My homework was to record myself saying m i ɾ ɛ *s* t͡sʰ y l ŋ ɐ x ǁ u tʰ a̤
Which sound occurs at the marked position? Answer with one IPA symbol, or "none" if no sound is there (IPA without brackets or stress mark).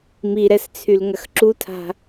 s